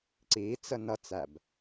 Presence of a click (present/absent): present